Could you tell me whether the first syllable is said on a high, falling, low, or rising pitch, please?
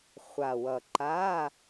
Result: low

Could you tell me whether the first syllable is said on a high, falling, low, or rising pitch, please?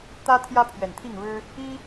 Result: high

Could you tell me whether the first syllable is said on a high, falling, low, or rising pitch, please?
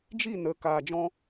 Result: falling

